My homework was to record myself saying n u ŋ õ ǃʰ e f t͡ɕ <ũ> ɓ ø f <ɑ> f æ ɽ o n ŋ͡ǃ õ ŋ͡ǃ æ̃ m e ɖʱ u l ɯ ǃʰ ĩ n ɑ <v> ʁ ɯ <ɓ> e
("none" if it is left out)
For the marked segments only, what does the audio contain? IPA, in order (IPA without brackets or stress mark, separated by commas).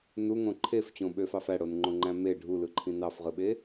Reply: õ, ɑ, f, ɓ